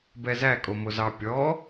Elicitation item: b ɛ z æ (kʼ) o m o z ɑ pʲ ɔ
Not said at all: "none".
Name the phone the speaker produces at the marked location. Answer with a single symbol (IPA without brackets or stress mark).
kʼ